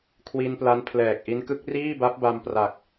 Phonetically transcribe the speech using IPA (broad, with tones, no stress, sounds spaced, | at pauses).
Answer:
kʰ w i˧ n p l a˦˥ n pʰ l ɛː˨˩ k̚ ʔ i˦˥ n k ɯ˦˥ k̚ r iː˥˩ b a˦˥ p̚ b a˧ m p r a˨˩ k̚